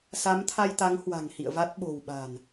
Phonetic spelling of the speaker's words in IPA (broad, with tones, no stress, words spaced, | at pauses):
sa˨˦mt̪ʰa˧jt̪a˨˦ŋ hwa̤˨˩ŋhḭ˧˨ə̯va˦˥t̚ ɓo̤˨˩wɓa̤˨˩n